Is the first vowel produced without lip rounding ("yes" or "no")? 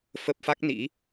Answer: yes